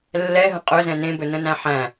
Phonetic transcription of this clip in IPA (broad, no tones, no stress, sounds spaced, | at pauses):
lː ɛ ɦ ə̃ qʼ ɵ z ɛ̃ n ẽ b ɵ n ə̃ n æ̃ ħ æ̃